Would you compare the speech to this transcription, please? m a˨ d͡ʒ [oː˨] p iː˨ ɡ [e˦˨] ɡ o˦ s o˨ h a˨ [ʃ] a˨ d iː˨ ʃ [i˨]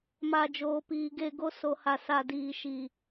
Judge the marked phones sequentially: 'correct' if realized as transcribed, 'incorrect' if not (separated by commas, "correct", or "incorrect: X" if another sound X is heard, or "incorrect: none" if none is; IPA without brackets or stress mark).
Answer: correct, correct, incorrect: s, incorrect: iː˨